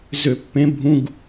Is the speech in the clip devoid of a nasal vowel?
no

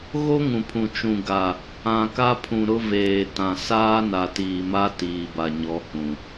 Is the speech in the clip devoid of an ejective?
yes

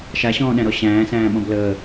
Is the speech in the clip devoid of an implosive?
no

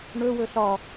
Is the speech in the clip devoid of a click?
yes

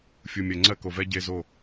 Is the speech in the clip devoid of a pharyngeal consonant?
yes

